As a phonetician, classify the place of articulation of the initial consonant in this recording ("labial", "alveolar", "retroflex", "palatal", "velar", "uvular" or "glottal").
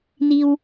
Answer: alveolar